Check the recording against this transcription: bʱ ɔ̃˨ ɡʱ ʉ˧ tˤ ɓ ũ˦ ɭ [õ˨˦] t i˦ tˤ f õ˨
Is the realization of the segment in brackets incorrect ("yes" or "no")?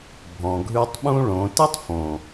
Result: no